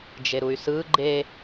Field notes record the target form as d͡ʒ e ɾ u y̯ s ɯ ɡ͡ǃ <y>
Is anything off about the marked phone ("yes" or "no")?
yes